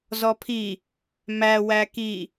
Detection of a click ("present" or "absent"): absent